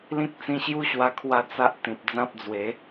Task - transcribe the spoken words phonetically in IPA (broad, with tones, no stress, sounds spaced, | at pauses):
l ĩ˦ k̚ t͡s ĩ˧ ɕ j u˦ ɕ w a˧ kʰ w a˧ t͡s a˦ ʔ t̪ ĩ˨ p̚ d͡z ã˦ p̚ d͡z w e˨˦